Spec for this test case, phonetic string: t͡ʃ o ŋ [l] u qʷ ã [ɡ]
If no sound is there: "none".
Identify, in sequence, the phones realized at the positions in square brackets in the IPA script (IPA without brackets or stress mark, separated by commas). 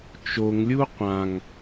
lʲ, ŋ